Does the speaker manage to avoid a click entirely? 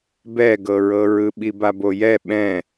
yes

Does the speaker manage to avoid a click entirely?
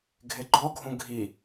no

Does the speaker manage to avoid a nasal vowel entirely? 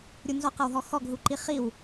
yes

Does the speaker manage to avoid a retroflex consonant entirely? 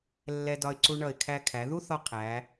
no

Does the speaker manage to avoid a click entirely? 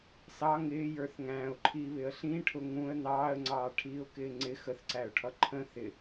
no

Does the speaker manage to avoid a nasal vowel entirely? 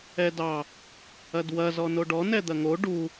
yes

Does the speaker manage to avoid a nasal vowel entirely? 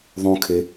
no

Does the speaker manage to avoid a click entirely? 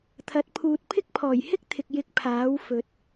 yes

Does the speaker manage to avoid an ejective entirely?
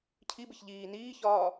yes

